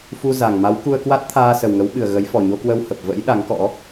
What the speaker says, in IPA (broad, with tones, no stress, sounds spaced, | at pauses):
f u˧ z a˨˩ ŋ m a˨˦ w k u˧ ə̯ k w a˦˥ t̚ t̪ʰ aː˧ s ə˨˩ w ŋ ə˨˦ w ɓ ɨ˨˩ ə̯ ɣ ə˨˦ j f ɔ˨˩ ɲ o˧ k w ə˧ w h ə˨˩ p̚ v ə̰˧˥ j ɗ a˨˦ ŋ k ɔ̰˧˥